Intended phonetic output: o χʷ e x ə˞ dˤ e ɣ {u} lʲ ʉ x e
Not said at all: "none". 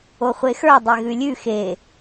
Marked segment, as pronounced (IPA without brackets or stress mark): ʉ